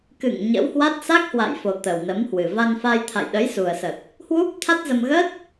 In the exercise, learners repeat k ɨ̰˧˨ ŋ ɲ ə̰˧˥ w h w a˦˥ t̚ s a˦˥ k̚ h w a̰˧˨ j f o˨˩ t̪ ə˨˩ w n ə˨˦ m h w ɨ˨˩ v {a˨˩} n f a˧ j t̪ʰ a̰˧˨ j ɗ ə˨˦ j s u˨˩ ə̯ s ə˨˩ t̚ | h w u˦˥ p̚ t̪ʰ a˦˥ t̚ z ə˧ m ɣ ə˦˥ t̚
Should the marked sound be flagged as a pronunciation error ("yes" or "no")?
yes